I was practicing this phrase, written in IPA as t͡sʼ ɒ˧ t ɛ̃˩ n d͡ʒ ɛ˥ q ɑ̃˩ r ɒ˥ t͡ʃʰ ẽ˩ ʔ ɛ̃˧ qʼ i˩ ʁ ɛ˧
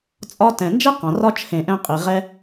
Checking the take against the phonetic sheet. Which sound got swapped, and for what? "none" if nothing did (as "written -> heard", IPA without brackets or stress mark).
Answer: none